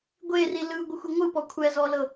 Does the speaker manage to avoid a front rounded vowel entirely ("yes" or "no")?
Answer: yes